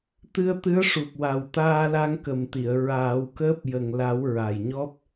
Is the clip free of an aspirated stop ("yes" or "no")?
yes